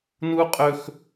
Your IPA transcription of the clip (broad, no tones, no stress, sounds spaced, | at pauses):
n u qʼ ɵ x